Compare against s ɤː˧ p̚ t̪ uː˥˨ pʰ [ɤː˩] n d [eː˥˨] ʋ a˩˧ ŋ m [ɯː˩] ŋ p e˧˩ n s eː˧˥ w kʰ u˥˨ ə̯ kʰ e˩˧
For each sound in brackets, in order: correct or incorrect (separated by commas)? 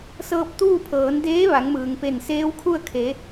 incorrect, incorrect, correct